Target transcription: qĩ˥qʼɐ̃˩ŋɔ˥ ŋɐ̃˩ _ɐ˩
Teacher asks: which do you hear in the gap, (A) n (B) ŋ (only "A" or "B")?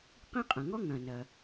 A